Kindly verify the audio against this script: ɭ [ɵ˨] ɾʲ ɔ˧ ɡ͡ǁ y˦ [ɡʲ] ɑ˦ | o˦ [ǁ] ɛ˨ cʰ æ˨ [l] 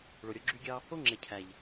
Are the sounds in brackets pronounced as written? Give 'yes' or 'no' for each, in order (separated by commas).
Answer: no, yes, no, no